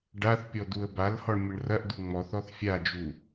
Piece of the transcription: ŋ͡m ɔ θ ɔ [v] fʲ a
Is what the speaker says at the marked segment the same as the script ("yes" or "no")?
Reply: no